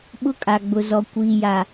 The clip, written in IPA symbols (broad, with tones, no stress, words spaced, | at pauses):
ɓʊ˦kʼa˨ɡ͡bʊ˨zɔ˨ kʷiː˨ja˨